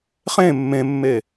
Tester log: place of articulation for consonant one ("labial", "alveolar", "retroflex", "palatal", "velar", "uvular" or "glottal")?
uvular